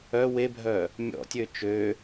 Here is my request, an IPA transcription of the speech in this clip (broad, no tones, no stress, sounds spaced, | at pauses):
œ w e bʱ œ | mʲ ɔ̰ tʲ ø t͡ʃ ø